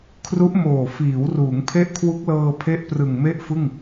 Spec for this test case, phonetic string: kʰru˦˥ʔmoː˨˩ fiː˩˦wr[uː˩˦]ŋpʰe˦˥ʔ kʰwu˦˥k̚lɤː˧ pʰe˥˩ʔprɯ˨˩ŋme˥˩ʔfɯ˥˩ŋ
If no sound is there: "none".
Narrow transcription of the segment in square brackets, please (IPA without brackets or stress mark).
uː˩˦